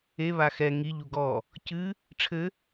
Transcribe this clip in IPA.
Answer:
e β a x ɛ ŋ i ʎ u ɡ ɔ | c ɨ | ʈ͡ʂʰ ɘ

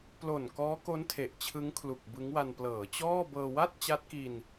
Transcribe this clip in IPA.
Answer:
p l o˨˩ n k ɔː˦˥ k o˦˥ n tʰ e˨˩ ʔ t͡ɕʰ ɯ˦˥ ŋ kʰ l u˨˩ k̚ b ɯ˦˥ ŋ w a˧ n p l ɤː˩˦ t͡ɕ ɔː˥˩ b ɤː˧ w a˥˩ t̚ t͡ɕ a˦˥ t̚ k i˧ n

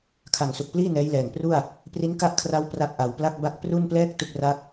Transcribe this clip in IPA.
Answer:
kʰ a˨˩ ŋ s u˨˩ k̚ p l iː˥˩ n ɛː˦˥ j l ɛː˨˩ ŋ p r u˥˩ a̯ | p r i˦˥ n k a˥˩ ʔ kʰ r a˦˥ w p r a˦˥ k̚ ʔ a˨˩ w p l a˥˩ k̚ b a˥˩ k̚ p r u˥˩ n p l ɛː˥˩ k̚ t u˥˩ k̚ r a˥˩ k̚

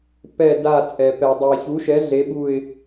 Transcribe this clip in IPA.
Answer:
p ɛ˦˨ d a˦˨ t͡sʼ ɛ˨ p ɛ˨ dˤ o˨ ɪ̯ ç u˨˥ ʃ ɛ˨˥ ɮ e˨˥ ɓ u˦˨ ɪ̯

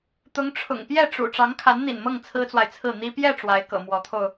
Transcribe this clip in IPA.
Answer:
t̪ ʊ˧˥ ŋ ʈ͡ʂʰ ʊ̰˨˩ ŋ p j ɛ˥˩ ʈ͡ʂ ṵ˨˩ ʈ͡ʂ ɑ˧˥ ŋ kʰ a˧˥ n n̪ ḭ˨˩ n m ɤ˥˩ ŋ t͡sʰ ɹ̩˥ t͡s w a˨ ɪ̯ t͡sʰ ɹ̩˥˩ n̪ i˥ p j ɛ˥˩ ʈ͡ʂ w a˧˥ ɪ̯ k ɤ̰˨˩ m w ɔ˧˥ t̪ʰ o˧ ʊ̯

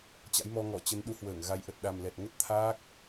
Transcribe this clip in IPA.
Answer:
t͡ɕ a̰˧˥ j m ɔ˧ ŋ ɔ˧˩ t͡ɕ ə˨˦ n ɗ u˨˦ h w əː˧˩ ŋ ɣ a˨˦ j ʔ ə˨˩ t̚ ɗ a˨˩ m l ɛ˨˩ t̚ ŋ ə˦˥ t̚ t̪ʰ aː˦˥ k̚

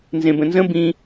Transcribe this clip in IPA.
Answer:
n z ẽ b ə̃ n z ə̃ b ĩ

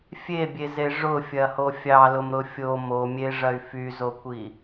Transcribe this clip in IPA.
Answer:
fʲ e bʲ e z e ʐ ʊ fʲ ɐ h o fʲ ɑ l ʊ m ɾ ʊ fʲ o m o mʲ e ʐ ɐ y̯ f y z o kʷ i

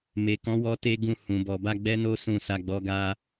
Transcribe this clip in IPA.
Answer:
m e˨ k ɔ̃˨˦ w ɔ˦ t e˦ ɡ ũ˦˨ h ũ˨ b ɔ˨ b a˧ ɡ͡b ɛ˦ n o˦ s ũ˧ s a˧ ɡ͡b ɔ˦ ɡ a˦

